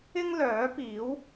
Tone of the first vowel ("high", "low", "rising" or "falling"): high